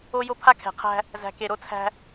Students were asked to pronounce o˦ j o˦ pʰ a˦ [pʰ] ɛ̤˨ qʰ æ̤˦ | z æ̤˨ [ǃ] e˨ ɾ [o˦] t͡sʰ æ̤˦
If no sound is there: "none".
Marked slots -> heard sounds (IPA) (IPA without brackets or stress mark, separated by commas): kʰ, k, o˦